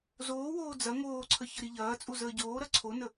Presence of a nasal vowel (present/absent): absent